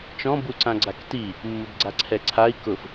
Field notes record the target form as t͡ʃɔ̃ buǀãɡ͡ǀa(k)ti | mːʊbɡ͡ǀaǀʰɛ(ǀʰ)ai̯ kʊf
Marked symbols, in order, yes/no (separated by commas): yes, yes